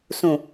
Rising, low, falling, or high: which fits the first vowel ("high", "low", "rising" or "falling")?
low